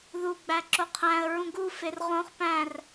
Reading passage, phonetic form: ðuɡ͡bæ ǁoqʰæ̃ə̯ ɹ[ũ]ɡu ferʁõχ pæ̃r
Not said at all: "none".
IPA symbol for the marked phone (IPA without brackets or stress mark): ũ